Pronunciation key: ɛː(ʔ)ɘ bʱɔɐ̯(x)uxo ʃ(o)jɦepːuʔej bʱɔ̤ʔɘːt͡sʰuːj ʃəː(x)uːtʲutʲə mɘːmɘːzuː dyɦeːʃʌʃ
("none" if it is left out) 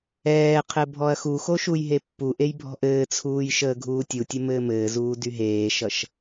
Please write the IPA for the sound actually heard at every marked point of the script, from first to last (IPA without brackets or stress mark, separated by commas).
qʰ, x, u, ɡʱ